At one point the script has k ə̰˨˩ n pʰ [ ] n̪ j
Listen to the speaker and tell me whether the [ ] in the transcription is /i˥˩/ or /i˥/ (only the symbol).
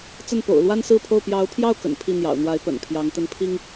i˥˩